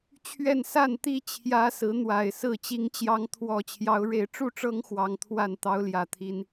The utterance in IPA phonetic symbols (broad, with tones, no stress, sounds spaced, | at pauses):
t͡ɕʰ ɥ ɛ˥˨ n s a˥˨ n t̪ i˥˨ t͡ɕʰ j ä˦ s ɹ̩˨˦ n̪ w a˨˩ ɪ̯ s ɹ̩˥˨ t͡ɕ i˨˦ ŋ t͡ɕ j ɑ˨˦ ŋ t̪ʰ w ɔ˨˩ t͡ɕʰ j ɑ˨˦ ʊ̯ ɻ e˨˦ ɪ̯ ʈ͡ʂ u˥˨ ʈ͡ʂ ɤ˦ ŋ x w ɑ˨˦ ŋ t̪ʰ w a˥˨ n t̪ ɑ˦ ʊ̯ l j ä˨˩ t̪ʰ i˨˦ n